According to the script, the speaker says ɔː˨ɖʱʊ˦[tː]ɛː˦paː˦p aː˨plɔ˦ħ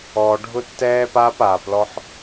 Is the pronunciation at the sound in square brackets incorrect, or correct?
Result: correct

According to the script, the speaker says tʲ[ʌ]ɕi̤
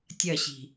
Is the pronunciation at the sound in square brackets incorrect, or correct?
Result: correct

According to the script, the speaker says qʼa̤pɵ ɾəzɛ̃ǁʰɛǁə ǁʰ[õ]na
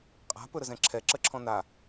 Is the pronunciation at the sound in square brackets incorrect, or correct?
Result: incorrect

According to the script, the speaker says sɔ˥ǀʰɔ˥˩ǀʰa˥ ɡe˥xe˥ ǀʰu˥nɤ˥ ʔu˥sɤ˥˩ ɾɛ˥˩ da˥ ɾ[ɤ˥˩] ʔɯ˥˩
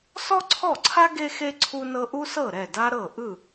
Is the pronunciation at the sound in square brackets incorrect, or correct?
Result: correct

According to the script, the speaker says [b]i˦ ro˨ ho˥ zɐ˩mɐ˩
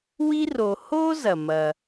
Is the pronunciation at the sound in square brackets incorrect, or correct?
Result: incorrect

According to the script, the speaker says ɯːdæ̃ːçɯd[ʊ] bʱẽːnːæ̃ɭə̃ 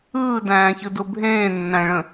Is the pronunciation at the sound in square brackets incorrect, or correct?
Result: correct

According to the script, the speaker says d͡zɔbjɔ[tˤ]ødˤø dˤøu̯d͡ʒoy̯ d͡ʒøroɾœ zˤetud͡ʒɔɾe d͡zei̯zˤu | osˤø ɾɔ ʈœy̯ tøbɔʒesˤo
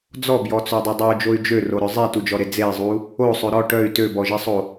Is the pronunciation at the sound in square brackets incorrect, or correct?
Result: incorrect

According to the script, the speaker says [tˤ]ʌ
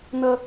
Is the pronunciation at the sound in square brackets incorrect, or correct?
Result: incorrect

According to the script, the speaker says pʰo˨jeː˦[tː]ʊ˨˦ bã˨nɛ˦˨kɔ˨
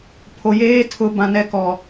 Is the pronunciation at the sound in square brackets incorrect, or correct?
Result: incorrect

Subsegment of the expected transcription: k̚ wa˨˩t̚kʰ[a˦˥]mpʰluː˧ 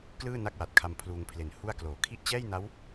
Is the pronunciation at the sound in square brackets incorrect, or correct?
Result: incorrect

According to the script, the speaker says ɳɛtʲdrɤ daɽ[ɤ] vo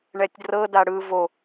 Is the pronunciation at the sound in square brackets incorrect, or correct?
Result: incorrect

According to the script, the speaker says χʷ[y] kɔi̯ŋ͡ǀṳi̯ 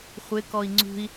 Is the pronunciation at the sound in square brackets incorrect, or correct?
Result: incorrect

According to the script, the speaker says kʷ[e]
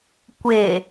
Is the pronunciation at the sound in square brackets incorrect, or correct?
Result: correct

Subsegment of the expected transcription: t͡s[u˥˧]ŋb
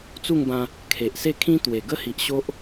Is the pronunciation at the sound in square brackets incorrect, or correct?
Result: correct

